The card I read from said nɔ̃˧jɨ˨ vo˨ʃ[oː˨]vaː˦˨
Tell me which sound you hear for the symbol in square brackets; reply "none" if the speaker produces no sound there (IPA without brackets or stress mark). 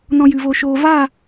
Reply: oː˨